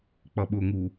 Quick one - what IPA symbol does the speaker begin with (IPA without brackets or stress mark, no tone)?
k͡p